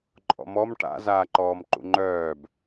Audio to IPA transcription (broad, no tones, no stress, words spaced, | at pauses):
ǃʼɔ̰mɔm ʈa̰ zaːǃɔːmǃṵŋ͡ǃœːb